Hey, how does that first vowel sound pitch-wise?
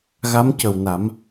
rising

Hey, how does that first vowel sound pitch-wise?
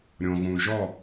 low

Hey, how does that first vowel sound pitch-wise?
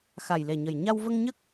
low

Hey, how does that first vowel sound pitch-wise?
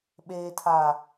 low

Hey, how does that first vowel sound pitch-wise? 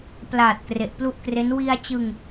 low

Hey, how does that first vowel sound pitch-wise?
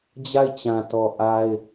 falling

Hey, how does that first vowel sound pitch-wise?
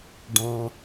low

